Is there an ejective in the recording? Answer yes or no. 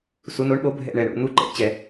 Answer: no